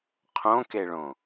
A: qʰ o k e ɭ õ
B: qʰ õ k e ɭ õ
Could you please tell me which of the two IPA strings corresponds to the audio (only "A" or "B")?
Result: B